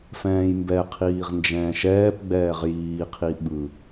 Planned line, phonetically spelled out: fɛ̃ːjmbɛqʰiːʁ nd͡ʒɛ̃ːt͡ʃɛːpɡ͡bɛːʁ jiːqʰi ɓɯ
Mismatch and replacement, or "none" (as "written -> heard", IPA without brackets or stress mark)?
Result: t͡ʃ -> ʃ